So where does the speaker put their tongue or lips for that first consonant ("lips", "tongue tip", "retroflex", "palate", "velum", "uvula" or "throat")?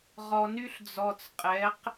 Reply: uvula